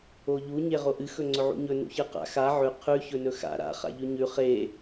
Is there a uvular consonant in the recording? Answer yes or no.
yes